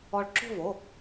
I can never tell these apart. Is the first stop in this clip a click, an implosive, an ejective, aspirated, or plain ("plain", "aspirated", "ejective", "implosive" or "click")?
click